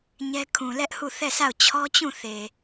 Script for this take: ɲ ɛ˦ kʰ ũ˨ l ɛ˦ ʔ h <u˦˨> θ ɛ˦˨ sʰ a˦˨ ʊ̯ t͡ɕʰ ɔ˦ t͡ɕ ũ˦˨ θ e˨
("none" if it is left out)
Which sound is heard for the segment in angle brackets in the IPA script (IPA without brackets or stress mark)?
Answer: u˦˨